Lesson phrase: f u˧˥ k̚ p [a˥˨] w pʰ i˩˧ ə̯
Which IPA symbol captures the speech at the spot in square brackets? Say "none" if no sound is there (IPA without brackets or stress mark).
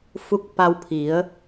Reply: a˧